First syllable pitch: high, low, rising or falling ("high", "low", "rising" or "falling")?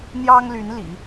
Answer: high